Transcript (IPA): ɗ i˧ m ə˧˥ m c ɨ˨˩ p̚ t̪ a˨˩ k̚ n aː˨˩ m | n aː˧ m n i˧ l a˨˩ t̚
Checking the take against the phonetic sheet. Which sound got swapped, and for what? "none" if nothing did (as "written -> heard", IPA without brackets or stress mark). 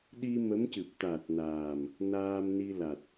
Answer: k̚ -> t̚